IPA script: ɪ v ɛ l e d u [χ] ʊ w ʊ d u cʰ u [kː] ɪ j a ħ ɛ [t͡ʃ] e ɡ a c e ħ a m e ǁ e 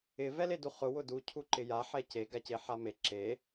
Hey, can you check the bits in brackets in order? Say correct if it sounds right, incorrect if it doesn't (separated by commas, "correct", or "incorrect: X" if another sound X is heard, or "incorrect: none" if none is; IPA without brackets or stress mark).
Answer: correct, incorrect: ǃ, incorrect: c